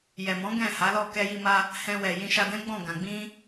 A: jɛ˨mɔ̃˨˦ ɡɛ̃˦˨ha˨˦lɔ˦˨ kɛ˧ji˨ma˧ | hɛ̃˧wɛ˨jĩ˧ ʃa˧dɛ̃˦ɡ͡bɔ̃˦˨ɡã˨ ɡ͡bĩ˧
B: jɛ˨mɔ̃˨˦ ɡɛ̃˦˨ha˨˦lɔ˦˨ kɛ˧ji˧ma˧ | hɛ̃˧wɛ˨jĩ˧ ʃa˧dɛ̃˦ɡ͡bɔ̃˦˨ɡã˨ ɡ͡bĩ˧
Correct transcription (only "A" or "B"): B